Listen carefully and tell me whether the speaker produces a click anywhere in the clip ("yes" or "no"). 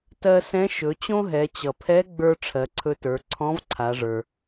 yes